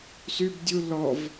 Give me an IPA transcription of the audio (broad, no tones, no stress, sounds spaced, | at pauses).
s y b dʲ u l ɔ v